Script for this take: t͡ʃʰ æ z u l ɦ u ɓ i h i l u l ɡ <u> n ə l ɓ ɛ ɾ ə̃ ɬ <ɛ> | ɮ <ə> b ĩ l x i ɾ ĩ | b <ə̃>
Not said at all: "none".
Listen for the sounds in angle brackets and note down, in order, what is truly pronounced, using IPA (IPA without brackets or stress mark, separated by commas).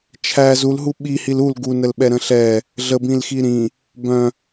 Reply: u, ɛ, ə, œ̃